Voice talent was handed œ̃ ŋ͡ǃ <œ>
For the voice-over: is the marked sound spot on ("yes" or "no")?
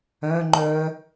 yes